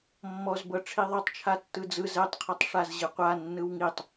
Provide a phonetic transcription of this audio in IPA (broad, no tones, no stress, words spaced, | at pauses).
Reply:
mːɔzbɤ ʈ͡ʂʰiðˤɤtˤt͡ʃʰa tːɯd͡zɯ zɛtˤqʰɤtˤ ʂazʑɯqʷa nːɯwŋitˤ